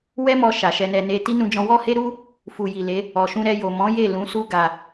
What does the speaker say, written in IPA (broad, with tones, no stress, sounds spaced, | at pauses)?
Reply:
w ɛ˦ m ɔ˧ ʃ a˨ ʃ ɛ˧ n ɛ˧ n e˧ t i˦ n ũ˧ d͡ʒ ɔ̃˧ w ɔ˦ h e˦ ɾ u˦ | f u˨ j i˨ l e˨˦ | ɔ˨ ʃ ũ˧ ɾ ɛ˧ j o˨ m ɔ̃˨˦ j e˦˨ l ũ˨˦ s u˦ ɡ a˧